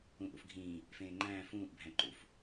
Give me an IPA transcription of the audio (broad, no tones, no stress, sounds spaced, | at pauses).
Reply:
ũ ʔ ṵ f ɡʱ ĩː | f ẽː ŋ͡ǃ æ̃ː f ũː ʔ bʱ æ̃ ǃ ṵ f